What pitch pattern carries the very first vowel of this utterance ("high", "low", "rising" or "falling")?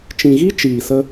low